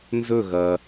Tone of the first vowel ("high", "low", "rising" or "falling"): falling